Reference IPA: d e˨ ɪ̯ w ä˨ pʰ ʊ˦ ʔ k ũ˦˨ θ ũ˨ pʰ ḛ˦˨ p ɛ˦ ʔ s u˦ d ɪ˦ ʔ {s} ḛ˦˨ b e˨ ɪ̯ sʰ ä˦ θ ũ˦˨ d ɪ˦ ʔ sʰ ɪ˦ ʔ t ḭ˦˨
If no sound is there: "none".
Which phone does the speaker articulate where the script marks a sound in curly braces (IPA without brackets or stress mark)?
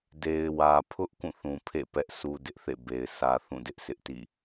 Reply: θ